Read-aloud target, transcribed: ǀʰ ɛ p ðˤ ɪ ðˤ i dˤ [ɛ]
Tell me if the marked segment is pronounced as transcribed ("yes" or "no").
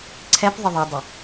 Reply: no